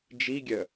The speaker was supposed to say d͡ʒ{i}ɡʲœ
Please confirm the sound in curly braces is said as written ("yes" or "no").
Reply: yes